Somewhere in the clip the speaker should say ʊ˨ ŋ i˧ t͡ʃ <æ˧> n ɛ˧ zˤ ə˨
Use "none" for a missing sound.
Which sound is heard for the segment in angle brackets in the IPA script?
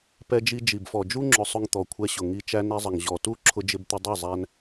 æ˧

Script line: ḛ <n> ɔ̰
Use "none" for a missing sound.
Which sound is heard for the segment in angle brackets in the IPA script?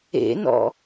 n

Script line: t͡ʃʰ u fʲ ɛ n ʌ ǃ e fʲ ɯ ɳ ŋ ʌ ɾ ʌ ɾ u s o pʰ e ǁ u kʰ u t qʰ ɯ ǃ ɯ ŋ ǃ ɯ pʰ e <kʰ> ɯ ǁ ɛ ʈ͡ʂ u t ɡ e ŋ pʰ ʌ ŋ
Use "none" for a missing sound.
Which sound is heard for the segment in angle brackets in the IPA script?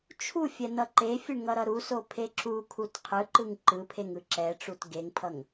ŋ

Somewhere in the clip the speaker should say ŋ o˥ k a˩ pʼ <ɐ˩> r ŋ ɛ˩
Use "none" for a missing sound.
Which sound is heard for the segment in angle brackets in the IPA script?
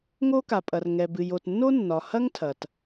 ɐ˩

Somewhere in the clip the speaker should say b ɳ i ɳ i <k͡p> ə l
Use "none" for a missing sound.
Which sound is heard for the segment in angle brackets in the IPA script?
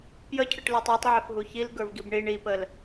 p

